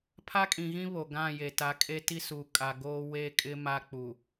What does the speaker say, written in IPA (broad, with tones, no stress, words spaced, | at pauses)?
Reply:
pʰa˦kʼĩ˨ɣĩ˦ βo˨ ɡã˦˨je˨ ta˨˦kʼe˦ti˦suː˨ kʼa˨ ɡoː˦ we˦˨kʼɪ˦ ma˦k͡pu˨